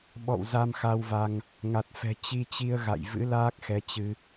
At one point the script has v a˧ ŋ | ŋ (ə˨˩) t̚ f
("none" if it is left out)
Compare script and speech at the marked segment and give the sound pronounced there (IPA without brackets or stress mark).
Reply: a˨˩